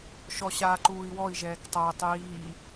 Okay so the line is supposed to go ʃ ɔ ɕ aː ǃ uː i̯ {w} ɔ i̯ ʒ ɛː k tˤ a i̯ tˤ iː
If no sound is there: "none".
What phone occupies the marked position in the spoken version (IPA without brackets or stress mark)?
w